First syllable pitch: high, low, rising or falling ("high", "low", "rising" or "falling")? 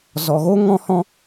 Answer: low